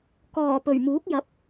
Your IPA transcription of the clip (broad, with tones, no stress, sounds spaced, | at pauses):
k ɔː˨˩ p ɵ˨˩ ɥ m uː˨˥ k̚ j ɐ˨˥ p̚